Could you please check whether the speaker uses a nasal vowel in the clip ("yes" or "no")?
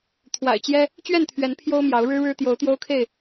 no